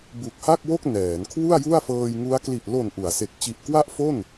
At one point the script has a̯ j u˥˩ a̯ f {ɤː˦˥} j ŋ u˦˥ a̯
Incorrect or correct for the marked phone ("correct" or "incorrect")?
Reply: incorrect